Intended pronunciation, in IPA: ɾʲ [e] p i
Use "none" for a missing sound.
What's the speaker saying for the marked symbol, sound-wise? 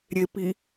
e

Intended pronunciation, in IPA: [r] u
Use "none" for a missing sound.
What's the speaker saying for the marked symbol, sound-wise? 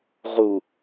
ʁ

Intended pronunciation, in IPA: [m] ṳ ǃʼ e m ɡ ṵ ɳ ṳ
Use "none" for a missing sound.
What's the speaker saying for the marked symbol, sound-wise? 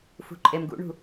f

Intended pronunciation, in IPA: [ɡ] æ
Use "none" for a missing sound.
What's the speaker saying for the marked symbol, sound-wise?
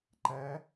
ǃ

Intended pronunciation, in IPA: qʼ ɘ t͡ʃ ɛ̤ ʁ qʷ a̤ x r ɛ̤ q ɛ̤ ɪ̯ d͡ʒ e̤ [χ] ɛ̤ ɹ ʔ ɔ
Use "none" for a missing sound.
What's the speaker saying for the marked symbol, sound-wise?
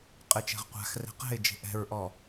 ʔ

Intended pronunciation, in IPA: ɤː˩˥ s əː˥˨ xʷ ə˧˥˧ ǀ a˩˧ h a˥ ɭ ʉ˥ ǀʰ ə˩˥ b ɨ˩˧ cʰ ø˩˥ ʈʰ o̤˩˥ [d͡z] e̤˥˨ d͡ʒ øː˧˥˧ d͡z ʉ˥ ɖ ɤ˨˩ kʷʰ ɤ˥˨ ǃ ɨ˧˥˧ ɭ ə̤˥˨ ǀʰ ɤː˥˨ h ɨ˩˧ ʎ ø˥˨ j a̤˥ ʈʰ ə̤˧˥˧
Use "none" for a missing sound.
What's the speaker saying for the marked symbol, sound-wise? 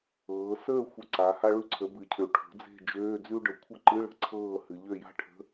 d͡z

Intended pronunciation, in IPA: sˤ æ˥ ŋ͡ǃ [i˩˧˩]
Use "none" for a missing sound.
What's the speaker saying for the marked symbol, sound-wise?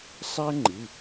i˩˧˩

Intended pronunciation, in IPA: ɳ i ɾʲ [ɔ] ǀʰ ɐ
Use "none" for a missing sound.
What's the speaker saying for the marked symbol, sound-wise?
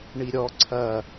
ɔ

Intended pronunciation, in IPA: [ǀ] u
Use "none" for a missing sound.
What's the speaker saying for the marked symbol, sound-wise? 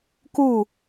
k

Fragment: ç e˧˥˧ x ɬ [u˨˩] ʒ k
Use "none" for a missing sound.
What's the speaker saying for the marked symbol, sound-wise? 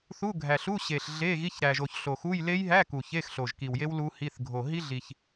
o˨˩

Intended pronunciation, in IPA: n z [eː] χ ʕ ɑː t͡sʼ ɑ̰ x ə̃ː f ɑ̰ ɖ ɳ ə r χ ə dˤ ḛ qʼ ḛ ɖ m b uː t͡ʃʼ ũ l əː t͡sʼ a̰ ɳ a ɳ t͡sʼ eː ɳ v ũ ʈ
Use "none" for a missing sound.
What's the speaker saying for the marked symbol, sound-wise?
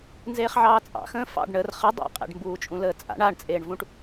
eː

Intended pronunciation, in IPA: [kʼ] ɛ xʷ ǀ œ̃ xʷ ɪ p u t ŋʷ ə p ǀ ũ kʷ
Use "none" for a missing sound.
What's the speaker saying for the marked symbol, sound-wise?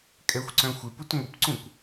kʼ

